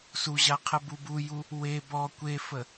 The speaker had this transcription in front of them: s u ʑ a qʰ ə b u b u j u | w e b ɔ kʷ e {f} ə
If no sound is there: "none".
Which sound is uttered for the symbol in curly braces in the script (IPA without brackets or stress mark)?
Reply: f